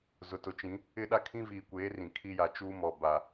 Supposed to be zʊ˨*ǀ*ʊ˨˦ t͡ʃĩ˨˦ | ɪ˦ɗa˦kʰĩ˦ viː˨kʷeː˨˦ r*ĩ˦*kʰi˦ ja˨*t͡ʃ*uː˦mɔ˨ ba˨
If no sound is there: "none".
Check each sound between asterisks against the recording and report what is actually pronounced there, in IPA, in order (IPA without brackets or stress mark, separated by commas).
t, ĩ˨, t͡ʃ